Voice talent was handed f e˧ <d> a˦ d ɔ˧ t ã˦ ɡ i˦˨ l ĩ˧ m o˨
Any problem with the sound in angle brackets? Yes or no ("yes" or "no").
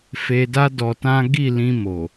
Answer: no